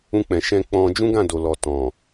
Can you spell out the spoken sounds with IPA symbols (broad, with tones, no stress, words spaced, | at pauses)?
ũ˧k͡pɛ̃˨ ʃɛ̃˧ k͡pɔ̃˧ d͡ʒũ˦ɡã˦˨do˨lɔ˨ tɔ̃˨